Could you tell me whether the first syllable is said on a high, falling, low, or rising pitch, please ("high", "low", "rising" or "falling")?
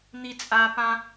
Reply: low